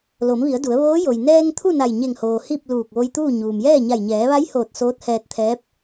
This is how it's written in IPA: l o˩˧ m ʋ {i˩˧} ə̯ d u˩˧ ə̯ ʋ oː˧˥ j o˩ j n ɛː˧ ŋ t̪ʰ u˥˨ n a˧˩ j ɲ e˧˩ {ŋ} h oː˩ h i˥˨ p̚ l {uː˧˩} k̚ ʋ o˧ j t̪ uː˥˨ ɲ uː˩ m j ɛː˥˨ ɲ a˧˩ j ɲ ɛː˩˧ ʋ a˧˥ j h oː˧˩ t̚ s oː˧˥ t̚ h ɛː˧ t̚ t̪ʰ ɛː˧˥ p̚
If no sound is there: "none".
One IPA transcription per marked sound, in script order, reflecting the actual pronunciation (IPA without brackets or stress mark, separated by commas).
i˩˧, ŋ, uː˧˩